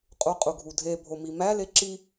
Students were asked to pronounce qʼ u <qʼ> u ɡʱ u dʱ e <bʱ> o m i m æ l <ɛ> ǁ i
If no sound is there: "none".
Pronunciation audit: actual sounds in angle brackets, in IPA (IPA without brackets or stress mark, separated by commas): qʼ, bʱ, e